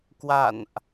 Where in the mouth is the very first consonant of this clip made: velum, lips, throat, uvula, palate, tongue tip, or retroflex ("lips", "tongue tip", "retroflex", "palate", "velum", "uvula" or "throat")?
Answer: velum